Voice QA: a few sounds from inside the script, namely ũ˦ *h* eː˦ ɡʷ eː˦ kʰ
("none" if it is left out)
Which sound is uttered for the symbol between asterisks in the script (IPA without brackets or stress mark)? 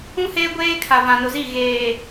h